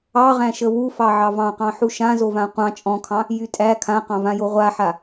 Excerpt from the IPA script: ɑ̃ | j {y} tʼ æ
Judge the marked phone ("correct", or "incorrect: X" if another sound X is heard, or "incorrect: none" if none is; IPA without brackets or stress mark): correct